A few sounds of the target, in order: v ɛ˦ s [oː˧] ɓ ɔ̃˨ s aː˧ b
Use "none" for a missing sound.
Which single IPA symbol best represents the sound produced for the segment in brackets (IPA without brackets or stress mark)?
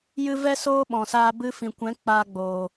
oː˦